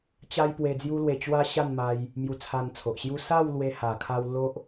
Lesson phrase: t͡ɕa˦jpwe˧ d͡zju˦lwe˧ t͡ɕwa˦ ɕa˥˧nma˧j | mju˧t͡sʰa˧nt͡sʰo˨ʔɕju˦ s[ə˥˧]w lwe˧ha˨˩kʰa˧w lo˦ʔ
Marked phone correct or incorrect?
incorrect